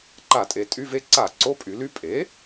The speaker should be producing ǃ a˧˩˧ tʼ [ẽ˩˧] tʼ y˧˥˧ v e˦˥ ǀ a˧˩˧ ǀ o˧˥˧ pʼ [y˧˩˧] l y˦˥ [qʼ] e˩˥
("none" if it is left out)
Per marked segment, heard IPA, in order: e˩˧, y˩˧, pʼ

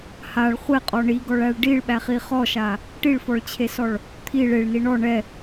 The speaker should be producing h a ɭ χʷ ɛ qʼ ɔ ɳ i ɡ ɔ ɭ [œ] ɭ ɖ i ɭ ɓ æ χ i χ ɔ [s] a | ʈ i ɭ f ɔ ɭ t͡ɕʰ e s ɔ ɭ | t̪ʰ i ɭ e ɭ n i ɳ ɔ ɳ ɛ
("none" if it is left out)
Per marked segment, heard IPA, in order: æ, ʃ

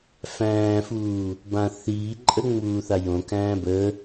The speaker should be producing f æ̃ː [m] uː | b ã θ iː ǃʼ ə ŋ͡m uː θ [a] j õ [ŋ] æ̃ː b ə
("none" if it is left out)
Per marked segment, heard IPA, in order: f, a, k

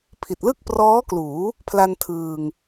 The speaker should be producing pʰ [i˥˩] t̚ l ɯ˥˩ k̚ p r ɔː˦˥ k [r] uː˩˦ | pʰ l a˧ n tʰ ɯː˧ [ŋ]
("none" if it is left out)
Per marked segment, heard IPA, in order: i˨˩, l, ŋ

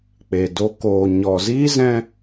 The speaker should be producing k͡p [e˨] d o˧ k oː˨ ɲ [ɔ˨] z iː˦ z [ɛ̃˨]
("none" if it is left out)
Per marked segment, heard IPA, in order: e˨, ɔ˨, ɛ̃˧

